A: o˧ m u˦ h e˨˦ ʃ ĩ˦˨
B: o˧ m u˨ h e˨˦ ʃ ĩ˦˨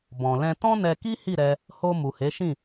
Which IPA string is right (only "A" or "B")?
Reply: B